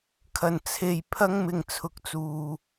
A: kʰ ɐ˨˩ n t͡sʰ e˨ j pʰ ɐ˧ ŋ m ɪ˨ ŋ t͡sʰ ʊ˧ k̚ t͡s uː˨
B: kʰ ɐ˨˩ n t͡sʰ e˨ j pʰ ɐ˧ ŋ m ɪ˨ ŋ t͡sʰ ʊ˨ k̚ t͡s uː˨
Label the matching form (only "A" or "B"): B